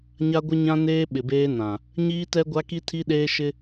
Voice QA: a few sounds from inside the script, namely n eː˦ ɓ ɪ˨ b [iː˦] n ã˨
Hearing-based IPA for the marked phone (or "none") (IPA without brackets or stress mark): eː˦